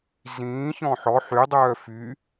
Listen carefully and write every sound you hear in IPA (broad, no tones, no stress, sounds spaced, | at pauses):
z ĩː ç ɔ̃ ħ ɔ ħ y dˤ œː f y